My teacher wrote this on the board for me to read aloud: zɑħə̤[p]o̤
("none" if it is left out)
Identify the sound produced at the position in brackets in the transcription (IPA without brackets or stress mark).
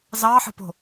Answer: p